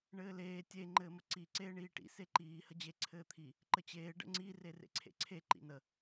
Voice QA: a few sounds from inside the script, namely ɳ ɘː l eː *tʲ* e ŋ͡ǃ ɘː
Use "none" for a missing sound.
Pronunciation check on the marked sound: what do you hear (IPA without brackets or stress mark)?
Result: tʲ